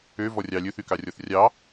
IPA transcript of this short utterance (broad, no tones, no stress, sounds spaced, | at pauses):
ø v ɔ rʲ ɑ lʲ ɵ θ y k ɑ rʲ ɔ θ rʲ ɑ